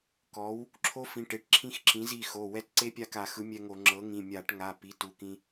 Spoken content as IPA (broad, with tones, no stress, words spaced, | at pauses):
kɔ˩˥w | ǁʰo˧˥fĩ˩˧˩ ʈe˩˥ʈ ǁʰĩ˧˥xǁĩ˩˥zi˩˧˩xo˩˧˩ wɛ˧˥tǀe˧˥pʲa˧ ka˧˩˧xɯ˩˥mʲɛ˧ŋo˧˩˧ ŋ͡ǁɤ˩˥ŋĩ˩˧˩ mʲa˧˩˧ʈŋa˩˧˩ pi˩˥tu˩˧˩kĩ˧